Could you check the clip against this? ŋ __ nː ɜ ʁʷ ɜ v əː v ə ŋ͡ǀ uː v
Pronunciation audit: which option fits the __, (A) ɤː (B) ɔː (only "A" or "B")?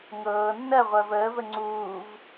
A